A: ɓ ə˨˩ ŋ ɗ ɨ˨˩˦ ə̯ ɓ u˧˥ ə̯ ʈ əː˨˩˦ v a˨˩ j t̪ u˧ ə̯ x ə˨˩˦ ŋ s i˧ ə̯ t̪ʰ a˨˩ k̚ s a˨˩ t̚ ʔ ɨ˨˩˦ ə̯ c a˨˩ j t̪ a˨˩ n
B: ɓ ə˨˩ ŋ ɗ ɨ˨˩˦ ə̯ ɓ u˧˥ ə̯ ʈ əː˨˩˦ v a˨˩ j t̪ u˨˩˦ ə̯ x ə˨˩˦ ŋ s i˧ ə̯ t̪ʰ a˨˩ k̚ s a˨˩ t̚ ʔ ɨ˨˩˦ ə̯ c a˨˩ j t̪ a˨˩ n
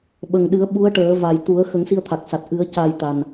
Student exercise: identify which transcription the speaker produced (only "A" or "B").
B